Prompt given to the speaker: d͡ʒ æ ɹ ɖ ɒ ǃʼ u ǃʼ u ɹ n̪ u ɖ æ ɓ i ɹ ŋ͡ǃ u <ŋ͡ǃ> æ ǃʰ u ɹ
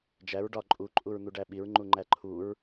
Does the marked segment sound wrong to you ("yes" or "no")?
no